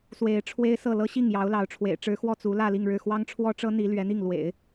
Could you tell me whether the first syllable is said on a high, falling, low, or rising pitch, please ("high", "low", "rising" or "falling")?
rising